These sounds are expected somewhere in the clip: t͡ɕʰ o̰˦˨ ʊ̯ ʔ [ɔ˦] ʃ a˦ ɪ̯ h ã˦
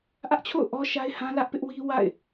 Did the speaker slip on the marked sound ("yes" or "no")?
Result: no